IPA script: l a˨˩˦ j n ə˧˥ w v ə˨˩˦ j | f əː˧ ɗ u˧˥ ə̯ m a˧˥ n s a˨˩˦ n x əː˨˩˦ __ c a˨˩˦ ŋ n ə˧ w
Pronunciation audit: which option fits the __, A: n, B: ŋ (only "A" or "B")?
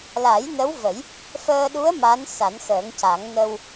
B